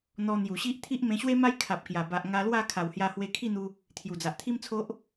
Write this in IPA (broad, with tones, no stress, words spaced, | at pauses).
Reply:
n̪ɔ˧ n̪ju˨˩ɕi˦ʔ t̪ʰi˦ʔmẽ˧ɕwe˦ ma˦jkʰa˨p̚ kja˨˩ba˨ʔ ŋa˧lwa˥˧ kʰa˨˩whja˧hwe˧ kʰi˥˧n̪u˧ | t̪ʰju˨˩d͡za˨ʔt̪ʰi˦mt͡sʰo˦ʔ